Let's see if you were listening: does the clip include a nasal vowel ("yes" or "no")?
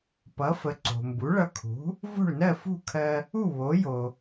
no